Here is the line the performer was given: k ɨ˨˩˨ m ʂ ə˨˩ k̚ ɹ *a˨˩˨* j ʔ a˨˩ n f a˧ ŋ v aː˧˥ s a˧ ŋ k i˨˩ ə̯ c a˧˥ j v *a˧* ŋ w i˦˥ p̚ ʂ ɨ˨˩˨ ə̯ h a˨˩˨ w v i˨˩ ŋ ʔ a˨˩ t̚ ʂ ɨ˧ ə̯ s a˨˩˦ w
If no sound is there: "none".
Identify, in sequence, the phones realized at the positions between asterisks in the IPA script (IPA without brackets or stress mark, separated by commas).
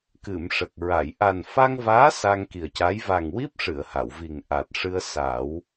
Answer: a˨˩˨, a˨˩